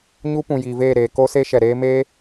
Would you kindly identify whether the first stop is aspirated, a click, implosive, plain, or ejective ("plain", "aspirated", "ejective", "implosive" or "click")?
plain